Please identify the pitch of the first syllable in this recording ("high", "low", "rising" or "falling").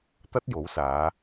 high